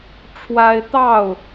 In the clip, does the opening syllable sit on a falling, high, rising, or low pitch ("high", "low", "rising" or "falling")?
high